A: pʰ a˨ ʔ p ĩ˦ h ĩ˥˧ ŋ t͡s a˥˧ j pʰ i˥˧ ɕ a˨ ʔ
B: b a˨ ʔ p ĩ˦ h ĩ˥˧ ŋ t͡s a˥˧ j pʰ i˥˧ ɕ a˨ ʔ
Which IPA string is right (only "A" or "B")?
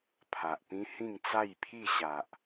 A